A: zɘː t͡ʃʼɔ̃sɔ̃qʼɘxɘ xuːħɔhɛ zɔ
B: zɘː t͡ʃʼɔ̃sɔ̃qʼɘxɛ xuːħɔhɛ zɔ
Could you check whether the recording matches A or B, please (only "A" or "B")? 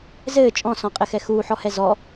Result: B